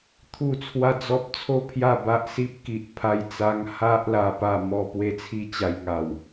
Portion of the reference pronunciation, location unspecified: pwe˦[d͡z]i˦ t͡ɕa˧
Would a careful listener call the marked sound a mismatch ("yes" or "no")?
yes